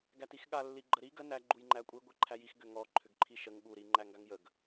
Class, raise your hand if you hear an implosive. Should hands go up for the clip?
yes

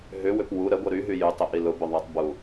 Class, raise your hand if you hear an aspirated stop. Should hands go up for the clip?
no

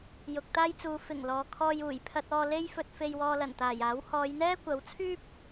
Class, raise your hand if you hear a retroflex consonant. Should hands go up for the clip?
no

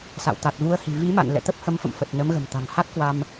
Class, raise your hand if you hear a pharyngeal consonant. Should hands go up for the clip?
no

